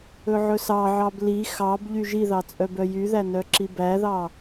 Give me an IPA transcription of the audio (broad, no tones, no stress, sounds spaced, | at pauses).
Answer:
ɵ ʕ ɵ s ɑ ʕ ɑ b l i x ɑ b ʎ y ʒ i ð ɑ t͡sʼ œ b œ j y ð æ n œ ǁ i b æ ð ɑ